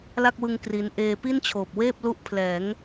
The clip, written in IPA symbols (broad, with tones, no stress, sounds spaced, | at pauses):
l a˥˩ k̚ w ɯ˧ ŋ k r i˧ n ʔ eː˧ p i˥˩ n t͡ɕʰ oː˨˩ p̚ w eː˥˩ p̚ l u˦˥ ʔ pʰ l ɛː˩˦ ŋ